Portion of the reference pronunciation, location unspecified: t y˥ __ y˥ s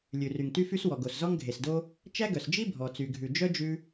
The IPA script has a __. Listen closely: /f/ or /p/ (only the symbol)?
f